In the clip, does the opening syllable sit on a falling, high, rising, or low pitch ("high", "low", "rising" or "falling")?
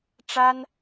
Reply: high